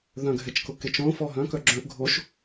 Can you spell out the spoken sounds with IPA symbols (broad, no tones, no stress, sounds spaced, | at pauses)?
ð œ̃ ɡʱ ɛ t͡ʃ k ʊ k e t͡ʃ õ f ɔ ɦ œ̃ k œ ɡ͡ǁ œ̃ ʔ ɡʱ o ʃ